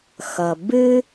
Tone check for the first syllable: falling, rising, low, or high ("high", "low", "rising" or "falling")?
low